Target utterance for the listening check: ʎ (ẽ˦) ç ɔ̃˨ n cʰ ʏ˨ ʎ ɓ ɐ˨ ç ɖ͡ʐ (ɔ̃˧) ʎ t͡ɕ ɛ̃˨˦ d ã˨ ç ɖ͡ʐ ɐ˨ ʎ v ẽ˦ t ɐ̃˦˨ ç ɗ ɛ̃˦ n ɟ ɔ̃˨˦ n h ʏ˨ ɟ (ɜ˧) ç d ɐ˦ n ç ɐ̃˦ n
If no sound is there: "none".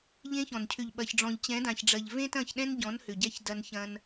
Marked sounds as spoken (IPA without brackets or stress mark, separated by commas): ẽ˦, ɔ̃˨, ɛ˧